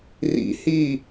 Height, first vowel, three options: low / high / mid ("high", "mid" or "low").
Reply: high